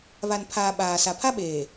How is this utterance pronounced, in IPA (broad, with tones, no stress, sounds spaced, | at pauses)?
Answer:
β a˨ n pʰ aː˨ ɓ aː˨ s a˨ pʰ a˦ ɓ eː˨